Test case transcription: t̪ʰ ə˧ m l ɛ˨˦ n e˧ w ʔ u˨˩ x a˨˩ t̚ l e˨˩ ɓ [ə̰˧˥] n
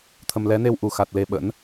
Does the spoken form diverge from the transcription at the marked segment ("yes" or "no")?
no